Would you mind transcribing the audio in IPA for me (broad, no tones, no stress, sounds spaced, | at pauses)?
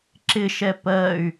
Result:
ǁ ɪ ʃ ɛ p ɜ y̯